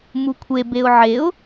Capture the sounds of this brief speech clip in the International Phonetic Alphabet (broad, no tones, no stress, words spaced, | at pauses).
mukʷʰebeʊ̯ ʕeʊ̯